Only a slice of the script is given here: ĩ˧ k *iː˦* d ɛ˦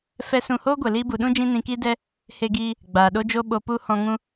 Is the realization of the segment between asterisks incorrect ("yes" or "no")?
no